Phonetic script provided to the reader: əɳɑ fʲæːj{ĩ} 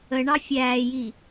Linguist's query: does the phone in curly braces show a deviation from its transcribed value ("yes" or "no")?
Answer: yes